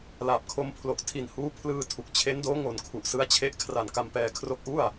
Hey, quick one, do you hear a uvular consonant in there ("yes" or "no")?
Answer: no